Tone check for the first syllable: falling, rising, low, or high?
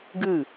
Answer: falling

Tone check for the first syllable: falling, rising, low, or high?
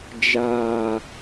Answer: low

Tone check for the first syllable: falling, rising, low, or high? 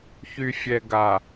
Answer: low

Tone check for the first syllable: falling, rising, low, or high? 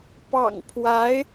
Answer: low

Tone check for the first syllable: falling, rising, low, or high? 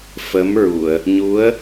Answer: rising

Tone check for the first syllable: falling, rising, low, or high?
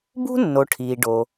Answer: high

